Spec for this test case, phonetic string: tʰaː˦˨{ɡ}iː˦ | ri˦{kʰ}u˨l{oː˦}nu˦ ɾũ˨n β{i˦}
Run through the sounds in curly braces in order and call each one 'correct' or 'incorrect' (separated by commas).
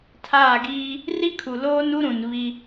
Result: correct, correct, correct, correct